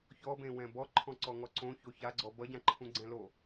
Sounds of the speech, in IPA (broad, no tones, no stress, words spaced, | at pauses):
çɔbẽ wɛ̃bɔ ǃʰɔ̃ǀɔŋɔǀõ çoça ɡ͡ǀɔbʌɟãǃʰũ ɡ͡ǀɛ̃lo